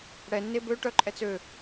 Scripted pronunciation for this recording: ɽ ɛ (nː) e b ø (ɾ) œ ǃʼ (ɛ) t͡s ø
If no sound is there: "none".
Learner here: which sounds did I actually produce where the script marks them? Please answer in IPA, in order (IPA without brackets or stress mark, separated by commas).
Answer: nː, ʈ, ɛ